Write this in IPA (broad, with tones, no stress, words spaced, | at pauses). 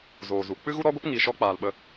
zoː˨zu˨ k͡pɨ˦ɣu˦ɾɔ˦ɡʷə˦p ŋi˧ʃɔ˦k͡paː˧l ɓə˧